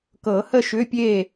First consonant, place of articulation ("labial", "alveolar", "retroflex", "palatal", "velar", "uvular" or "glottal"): velar